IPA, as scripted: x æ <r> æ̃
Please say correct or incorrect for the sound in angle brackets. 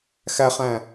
incorrect